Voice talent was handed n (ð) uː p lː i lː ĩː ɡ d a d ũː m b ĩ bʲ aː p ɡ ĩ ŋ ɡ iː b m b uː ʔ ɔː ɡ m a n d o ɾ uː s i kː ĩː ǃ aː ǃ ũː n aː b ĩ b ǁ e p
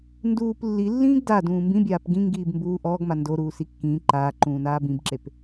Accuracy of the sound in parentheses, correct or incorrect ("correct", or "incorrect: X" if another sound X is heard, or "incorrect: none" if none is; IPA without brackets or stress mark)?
incorrect: d